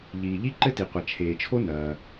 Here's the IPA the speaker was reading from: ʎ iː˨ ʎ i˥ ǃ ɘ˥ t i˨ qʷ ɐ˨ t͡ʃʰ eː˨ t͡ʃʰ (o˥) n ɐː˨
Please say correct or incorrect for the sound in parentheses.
correct